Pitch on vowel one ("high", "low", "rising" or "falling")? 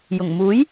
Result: low